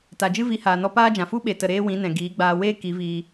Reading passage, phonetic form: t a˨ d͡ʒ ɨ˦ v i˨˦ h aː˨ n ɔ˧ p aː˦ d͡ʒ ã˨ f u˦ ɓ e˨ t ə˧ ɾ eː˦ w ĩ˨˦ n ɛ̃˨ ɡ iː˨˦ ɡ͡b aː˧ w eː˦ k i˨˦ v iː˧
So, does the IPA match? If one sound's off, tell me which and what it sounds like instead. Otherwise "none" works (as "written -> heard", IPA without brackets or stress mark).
ə˧ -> ə˨